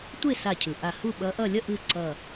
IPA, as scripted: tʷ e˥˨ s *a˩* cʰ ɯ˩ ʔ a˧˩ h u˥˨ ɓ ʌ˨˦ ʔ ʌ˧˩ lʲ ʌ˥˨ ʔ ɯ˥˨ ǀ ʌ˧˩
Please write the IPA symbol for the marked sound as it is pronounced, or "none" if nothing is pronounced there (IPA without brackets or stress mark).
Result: a˧˩